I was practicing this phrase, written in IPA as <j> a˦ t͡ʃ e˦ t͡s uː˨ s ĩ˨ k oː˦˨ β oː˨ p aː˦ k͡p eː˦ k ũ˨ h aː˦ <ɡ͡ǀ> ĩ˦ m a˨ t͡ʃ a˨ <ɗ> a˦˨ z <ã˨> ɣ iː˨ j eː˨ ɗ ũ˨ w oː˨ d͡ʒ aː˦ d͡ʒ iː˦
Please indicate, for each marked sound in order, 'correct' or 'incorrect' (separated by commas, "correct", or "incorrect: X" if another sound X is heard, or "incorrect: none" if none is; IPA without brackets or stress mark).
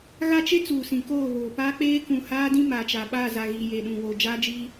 incorrect: ɣ, incorrect: d, incorrect: ɓ, incorrect: a˨